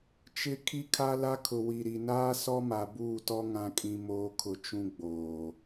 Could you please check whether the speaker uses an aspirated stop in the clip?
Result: yes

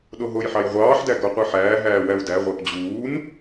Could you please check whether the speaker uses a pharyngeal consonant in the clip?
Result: yes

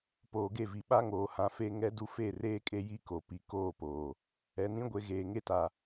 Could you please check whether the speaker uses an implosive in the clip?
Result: yes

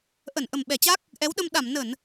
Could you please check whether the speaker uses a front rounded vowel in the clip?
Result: no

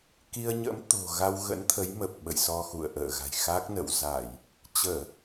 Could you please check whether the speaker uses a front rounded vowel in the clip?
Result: no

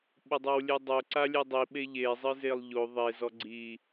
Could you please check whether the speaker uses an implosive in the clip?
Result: yes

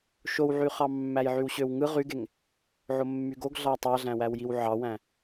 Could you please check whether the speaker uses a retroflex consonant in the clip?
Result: no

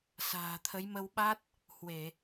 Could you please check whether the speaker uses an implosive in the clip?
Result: yes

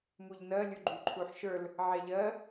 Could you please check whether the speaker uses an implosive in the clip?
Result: no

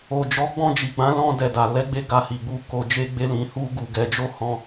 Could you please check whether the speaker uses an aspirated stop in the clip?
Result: no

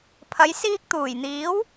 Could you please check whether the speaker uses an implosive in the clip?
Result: no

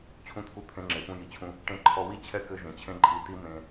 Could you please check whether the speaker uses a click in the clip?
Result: yes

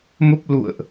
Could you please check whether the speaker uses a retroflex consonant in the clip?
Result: no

